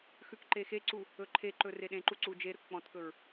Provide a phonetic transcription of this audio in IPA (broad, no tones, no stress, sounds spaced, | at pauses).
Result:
x ʉ k ǃ e x e ǀ u | ɵ ǃʰ e ǃ ɵ r e ɗ ẽ ǃ u ǀ u d͡ʒ e ɾ ɵ k k͡p ɔ̃ t k ɵ ɹ